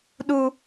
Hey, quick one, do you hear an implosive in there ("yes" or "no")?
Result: yes